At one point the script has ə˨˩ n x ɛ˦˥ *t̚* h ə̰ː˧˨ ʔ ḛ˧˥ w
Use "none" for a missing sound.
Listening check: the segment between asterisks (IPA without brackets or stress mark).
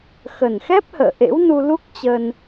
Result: p̚